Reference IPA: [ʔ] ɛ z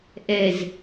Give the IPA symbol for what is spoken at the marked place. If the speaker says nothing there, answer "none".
ʔ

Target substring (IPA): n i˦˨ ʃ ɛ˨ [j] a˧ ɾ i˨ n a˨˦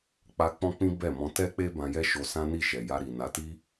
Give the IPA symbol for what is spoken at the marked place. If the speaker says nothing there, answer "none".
j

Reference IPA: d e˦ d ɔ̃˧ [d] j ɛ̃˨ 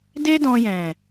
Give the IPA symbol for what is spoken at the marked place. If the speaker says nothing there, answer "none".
none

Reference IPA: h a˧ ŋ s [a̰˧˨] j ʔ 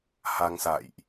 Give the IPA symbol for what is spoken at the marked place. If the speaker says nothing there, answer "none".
a̰˧˨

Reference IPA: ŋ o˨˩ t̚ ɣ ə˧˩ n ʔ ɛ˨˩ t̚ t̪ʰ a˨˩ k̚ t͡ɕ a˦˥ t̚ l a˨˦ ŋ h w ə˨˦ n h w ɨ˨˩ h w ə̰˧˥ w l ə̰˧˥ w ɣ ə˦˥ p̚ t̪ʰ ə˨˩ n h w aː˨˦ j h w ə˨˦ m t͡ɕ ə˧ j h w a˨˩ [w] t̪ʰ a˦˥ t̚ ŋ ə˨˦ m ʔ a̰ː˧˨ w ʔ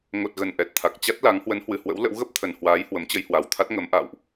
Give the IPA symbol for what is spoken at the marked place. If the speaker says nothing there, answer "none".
w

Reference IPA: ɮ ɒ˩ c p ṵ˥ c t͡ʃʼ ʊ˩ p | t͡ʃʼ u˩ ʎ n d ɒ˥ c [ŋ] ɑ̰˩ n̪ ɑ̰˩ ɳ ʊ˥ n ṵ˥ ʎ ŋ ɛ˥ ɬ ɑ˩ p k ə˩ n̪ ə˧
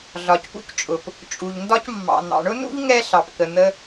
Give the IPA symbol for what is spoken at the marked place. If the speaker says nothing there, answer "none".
mː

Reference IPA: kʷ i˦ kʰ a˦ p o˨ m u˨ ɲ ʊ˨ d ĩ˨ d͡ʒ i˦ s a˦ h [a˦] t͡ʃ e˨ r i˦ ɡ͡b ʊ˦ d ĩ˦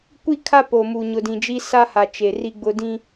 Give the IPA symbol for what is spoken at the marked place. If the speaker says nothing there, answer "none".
a˨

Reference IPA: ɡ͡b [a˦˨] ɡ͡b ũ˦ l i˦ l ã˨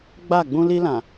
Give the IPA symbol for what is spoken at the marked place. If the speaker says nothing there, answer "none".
a˦˨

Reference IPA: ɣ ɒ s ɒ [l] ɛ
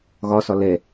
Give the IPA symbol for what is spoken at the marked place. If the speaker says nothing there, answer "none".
l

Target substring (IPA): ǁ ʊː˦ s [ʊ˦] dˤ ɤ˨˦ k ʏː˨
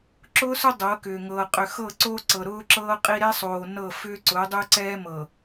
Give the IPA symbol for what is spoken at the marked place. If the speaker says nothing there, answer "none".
ʊ˦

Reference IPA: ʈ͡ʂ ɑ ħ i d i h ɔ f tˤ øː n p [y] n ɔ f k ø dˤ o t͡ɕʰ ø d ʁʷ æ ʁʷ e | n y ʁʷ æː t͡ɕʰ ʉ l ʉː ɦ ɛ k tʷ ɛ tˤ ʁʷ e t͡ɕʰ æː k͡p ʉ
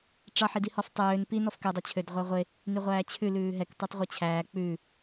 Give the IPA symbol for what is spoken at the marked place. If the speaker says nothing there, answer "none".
i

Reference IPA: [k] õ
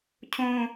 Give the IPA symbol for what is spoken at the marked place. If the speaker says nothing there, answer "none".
cʰ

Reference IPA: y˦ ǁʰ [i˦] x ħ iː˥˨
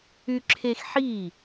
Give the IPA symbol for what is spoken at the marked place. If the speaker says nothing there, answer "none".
e˦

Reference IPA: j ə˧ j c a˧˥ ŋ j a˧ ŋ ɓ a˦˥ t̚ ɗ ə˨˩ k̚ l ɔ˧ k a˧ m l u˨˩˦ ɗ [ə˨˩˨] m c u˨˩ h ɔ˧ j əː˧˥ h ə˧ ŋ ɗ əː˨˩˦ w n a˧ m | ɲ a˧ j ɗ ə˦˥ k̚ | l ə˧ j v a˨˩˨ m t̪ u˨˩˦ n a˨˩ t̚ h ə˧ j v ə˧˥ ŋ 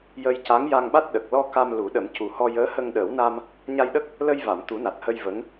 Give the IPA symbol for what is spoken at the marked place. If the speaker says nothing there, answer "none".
ə˨˩˦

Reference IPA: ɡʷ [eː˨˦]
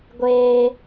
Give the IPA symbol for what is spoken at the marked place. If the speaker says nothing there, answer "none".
eː˦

